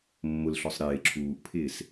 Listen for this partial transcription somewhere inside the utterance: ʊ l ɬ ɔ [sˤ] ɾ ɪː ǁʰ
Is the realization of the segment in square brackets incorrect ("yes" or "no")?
no